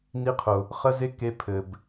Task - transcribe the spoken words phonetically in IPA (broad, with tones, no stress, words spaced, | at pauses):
ni˦qʰʊ˨ | χə˦ze˦ke˧ pʰɘ˨b